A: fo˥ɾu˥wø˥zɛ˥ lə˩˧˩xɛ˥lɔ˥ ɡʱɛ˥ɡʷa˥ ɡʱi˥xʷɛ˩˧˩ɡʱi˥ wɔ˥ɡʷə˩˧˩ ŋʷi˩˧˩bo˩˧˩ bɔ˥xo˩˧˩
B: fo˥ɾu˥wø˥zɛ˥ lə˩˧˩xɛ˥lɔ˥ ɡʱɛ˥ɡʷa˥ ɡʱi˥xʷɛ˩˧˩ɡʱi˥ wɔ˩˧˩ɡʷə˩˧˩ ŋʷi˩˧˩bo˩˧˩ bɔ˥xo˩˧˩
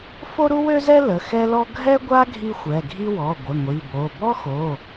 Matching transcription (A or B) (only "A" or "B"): B